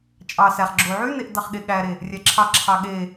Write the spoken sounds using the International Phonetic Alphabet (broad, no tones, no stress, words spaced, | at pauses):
t͡ʃʼɑ sæχ ɡ͡ǁo ʕyneʔ dɑχɠeɠæɾe | rʲæǁʰɑǁʰɑ ɠe